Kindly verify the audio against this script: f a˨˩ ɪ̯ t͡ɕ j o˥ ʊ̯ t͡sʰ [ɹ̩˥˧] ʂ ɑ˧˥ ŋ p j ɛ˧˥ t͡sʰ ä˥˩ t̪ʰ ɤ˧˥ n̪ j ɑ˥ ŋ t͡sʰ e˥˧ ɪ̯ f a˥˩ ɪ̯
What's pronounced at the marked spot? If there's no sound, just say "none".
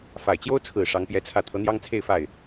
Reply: ɹ̩˨˩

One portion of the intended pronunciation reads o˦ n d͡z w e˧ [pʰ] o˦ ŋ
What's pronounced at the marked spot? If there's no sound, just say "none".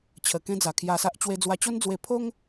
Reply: pʰ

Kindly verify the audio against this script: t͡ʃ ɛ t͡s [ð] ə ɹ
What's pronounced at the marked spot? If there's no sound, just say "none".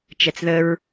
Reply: ð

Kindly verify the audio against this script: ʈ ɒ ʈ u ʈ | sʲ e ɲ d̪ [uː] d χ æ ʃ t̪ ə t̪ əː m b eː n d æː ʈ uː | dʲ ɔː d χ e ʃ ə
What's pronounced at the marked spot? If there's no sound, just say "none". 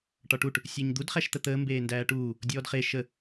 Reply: u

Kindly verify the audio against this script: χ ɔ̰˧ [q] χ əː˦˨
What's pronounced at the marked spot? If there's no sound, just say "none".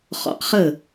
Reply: q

